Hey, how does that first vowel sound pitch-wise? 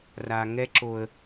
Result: low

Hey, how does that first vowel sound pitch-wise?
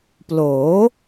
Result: rising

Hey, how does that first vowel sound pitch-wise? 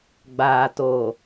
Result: low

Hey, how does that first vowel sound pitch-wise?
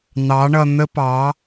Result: rising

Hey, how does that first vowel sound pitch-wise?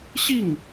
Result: falling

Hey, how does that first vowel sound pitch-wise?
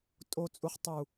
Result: low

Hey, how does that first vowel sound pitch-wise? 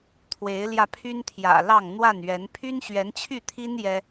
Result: rising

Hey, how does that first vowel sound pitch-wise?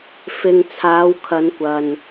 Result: low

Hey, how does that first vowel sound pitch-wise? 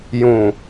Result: low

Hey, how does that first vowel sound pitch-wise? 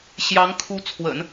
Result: rising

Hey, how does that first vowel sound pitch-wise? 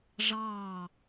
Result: falling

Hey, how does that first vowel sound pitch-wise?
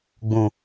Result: low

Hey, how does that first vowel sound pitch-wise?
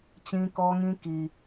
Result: high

